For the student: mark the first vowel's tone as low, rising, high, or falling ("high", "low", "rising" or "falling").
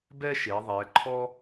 high